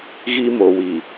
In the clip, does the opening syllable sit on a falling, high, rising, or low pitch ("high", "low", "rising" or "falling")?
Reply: high